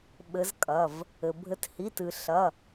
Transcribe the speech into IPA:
ɓ ɘ˨˦ z kʼ ɐ˩˧˩ v | ɘ˩ bʱ ɘ˨˦ t h i˩˧˩ t ɨ˩ ɬ ɐ˩˧˩

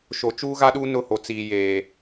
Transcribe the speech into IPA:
ʃ o˨ t͡ʃ uː˦ ɣ a˦ ɗ uː˦ n ʊ˦˨ h o˨ t͡s iː˨ j eː˨

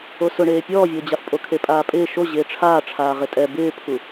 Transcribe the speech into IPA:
o s ʊ ɳ eː pʲ ɔː vʲ ʊː d͡ʑ a f pʼ o kʰ e pʼ aː pʼ ɪː ʃ o ʑ ɪː ʈ͡ʂʰ aː ʈ͡ʂʰ aː ʁ ɪ tʼ ɛ b ɪː pʰ u

